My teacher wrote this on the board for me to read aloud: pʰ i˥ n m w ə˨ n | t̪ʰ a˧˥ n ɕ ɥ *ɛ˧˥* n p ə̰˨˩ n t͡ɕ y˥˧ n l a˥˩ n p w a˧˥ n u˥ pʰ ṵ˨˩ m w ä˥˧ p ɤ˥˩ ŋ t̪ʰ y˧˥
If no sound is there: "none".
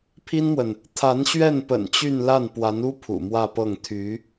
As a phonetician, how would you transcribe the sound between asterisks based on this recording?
ɛ˥˩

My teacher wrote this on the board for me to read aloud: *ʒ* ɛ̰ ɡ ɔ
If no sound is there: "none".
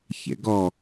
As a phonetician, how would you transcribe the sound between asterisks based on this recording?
ç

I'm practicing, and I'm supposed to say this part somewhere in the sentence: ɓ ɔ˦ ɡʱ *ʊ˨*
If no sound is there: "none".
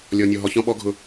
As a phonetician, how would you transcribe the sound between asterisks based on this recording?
ʊ˦˨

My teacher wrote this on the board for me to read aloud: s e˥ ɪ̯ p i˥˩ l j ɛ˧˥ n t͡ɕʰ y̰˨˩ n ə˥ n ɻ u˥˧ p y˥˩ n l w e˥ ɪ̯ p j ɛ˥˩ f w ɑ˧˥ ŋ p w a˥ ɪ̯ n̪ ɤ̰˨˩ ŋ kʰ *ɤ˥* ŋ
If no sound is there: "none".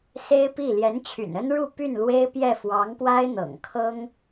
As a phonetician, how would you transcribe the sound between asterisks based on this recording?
ɤ˥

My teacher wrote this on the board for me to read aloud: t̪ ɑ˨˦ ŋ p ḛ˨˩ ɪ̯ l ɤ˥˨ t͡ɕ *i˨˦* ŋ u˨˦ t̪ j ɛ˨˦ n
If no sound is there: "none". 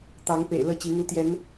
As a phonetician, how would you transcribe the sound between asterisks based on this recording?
i˨˦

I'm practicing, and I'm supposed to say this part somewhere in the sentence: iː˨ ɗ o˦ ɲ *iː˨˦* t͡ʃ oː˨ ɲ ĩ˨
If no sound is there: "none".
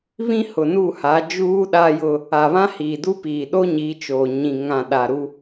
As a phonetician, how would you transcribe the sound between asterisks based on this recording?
iː˨˦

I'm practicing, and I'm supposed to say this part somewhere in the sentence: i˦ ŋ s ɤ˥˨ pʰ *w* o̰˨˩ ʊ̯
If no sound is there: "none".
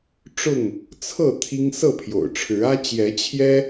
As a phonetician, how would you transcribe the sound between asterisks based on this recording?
j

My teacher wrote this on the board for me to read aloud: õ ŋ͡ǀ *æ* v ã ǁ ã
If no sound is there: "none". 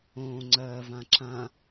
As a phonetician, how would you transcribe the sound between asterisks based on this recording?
ɜ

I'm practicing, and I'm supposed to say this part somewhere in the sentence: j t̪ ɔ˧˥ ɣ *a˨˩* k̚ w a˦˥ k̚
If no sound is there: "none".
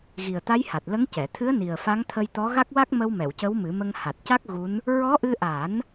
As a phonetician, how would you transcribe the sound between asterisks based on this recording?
a˦˥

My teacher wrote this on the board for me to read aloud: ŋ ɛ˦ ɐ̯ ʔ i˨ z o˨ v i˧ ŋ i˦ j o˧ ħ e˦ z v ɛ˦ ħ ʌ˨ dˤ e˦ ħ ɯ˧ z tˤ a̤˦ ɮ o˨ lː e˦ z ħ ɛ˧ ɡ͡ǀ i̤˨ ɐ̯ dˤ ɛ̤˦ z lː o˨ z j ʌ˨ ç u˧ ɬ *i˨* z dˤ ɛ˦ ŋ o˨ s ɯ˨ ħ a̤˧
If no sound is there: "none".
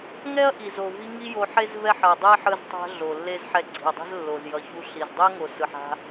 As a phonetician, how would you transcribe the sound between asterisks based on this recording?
i˨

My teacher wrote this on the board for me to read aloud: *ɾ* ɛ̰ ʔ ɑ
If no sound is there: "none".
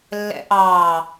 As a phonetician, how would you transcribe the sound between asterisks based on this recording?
lː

